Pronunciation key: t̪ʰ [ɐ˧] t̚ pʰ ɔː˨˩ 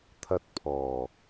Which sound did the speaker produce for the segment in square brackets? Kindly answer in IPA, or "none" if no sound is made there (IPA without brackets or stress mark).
ɐ˧